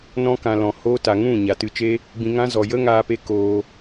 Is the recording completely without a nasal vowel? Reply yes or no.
no